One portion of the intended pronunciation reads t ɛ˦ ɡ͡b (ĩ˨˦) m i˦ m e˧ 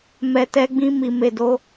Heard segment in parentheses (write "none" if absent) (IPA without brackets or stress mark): ĩ˦